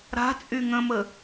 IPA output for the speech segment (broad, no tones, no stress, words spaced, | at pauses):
ɾa̤ t͡sʼyŋə̃mə